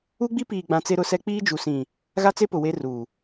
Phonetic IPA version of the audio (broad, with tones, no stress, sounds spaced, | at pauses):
u˦ ɡ͡b i˦ p iː˨ ɡ͡b ã˨ t͡s e˦ ɾ ʊ˦ s ɛ˦ k͡p iː˦ d͡ʒ u˨ s ĩ˨ | ɣ a˦ t͡s e˦ p ʊ˨ w e˦ r uː˨